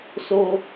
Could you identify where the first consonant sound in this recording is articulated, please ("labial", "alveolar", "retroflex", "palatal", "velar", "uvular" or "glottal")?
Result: alveolar